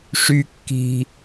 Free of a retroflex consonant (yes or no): no